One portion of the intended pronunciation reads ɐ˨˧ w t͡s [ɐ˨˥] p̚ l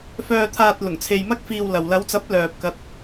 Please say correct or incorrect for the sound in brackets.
correct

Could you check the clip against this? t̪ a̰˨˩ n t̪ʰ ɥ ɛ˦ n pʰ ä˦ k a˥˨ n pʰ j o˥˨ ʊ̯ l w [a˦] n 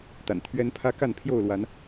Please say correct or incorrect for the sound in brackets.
incorrect: a˨˦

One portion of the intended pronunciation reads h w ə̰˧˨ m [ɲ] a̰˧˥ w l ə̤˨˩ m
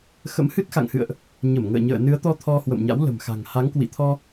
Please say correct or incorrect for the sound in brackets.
correct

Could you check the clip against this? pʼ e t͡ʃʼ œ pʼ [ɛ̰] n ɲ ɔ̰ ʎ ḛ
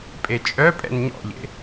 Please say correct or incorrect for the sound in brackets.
correct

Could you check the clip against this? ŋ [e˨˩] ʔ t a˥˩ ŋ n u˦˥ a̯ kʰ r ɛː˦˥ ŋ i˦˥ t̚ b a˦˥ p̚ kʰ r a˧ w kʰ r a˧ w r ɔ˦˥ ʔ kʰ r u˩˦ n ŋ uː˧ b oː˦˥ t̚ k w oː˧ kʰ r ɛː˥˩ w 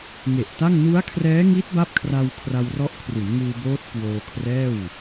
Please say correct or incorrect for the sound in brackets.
correct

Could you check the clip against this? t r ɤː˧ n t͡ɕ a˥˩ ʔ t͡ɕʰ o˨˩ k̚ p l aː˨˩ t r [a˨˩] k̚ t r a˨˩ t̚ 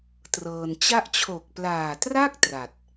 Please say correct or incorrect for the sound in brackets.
incorrect: a˥˩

